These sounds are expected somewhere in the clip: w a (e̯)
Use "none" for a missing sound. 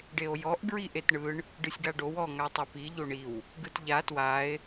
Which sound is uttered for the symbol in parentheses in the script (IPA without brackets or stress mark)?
e̯